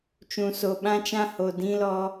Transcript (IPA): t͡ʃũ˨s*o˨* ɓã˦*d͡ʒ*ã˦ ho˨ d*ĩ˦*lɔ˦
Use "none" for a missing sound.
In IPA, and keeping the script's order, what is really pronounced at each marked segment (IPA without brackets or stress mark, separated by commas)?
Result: o˨, t͡ʃ, ĩ˦